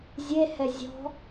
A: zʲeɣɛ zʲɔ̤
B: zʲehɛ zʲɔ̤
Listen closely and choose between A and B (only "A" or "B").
B